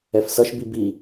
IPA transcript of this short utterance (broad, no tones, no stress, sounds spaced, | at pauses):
ɛ f s ʌ ʃ b i b i